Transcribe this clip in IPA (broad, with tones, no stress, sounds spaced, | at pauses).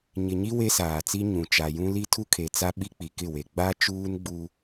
ɲ ɪ˨ ɲ i˦ w e˦ s aː˨ t͡s i˦ ɲ ũ˨ t͡ʃ a˨ j ũ˦ l i˦ tʰ u˦ kʰ e˨ t͡s a˦ ɓ i˦ k͡p i˨ k ɪ˦˨ w e˨ ɡ͡b a˦ t͡ʃ uː˦ n ɡ͡b u˦